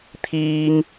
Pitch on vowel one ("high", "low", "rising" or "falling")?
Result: high